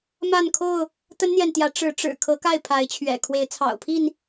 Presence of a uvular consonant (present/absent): absent